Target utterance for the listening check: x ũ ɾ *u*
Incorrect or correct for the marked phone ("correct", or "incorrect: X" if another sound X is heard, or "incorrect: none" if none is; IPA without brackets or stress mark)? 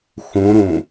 incorrect: ũ